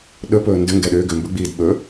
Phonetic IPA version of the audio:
ɗ ɵ p ɵː n d ʏ ŋ ɡ ɛ ɗ ʏː ɡ ʏ m b ɵ ɡ͡b iː d ɓ ɵ

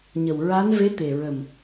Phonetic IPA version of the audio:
ɲ ə˨˩ w ɹ a˧˥ n v e˧˥ t̪ e˨˩ ɹ ə˨˩ m

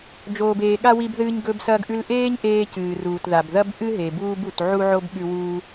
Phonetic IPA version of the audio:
d͡ʒ oː˩ b eː˩ ɠ a˥ w i˧ b ð ɨː˧ ɲ ɡ ɵ˧ b s ɐː˧ ɡ ʔ ʉ˧ l ʔ eː˥ ɲ ʔ eː˧ c ɨː˩ r uː˩ t ð a˩ b ð ɐ˥ b ʔ ɨ˥ ɦ e˩ b uː˥ b u˩ t ʕ u˥ ʕ o˥ b ɠ ʉ˧ w uː˧

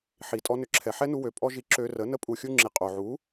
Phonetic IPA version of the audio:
ħ i˨ tʼ ɔ˧ n ʏ˧ ǁʰ ɛ˨ ħ ɛ˦ n u˧ w ø˨ pʼ ɔ˦ ʒ i˧ ǁ ø˧ r ə˨˦ n ə˦ pʼ u˧ xʲ u˦ ŋ͡ǁ i˨ qʼ o˨ ʕ u˨˦

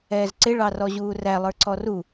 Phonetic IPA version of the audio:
ɛː z ǀ ɪ ɭ ɑ r ɔ ʑ uː r æ lˠ ə˞ ǀ ɔ r u

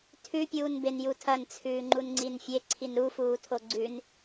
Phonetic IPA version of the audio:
tʰ ʉ pʲ uː n b e n j u tʰ ɐ n t͡sʰ ʉː ŋ͡ǃ u n ŋ͡ǀ i n fʲ e ǀʰ i n ɾ u f uː tʰ o ɡ͡ǀ ʉ n

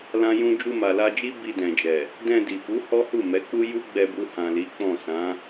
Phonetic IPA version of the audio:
l ã˦ j ũ˦ d͡ʒ u˧ m a˨ l a˧ d͡ʒ i˦ b i˧ d ɛ̃˨ d͡ʒ ɛ˨ | d ɛ̃˧ d i˨ f u˨˦ h ɔ˦ h u˦˨ m ɛ˨˦ k͡p u˦ j u˦ ɡ͡b ɛ˧ b u˧ h ã˨ l i˨˦ k͡p ɔ̃˦˨ s ã˨˦

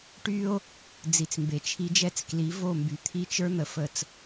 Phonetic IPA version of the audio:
ʈ y˦ o̯ | d͡z i˨ t͡s m b e˨ t͡ʃʰ i˦ d͡ʒ ɛ˦ t͡s k l i˨˦ v o˦˨ m b y˨ t̪ʰ i˦ t͡ʃ ə˞˦ n̪ ə˨ f ə˨ t͡s

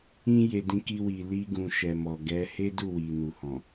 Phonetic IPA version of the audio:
ĩ˧ j e˨ d ĩ˧ k i˧ w i˨ l i˧ ɡ ũ˨ ʃ ɛ˨ m ɔ˨ ɡ ɛ˨˦ h e˦ d u˦˨ w i˨ n u˨ h ɔ̃˨

